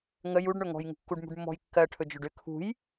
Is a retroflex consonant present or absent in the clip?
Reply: present